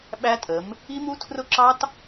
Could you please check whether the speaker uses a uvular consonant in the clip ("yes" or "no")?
no